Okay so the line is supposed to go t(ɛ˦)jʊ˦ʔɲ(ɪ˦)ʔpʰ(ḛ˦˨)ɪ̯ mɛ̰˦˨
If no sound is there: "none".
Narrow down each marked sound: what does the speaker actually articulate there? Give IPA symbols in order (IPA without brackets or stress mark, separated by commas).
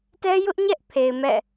ɛ˦, ɛ˦, e˨